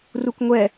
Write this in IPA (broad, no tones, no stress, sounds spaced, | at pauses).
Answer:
r u k ŋʷ ɛ